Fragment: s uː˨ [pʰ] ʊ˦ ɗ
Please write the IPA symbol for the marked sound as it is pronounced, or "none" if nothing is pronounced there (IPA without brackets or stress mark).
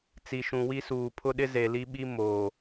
pʰ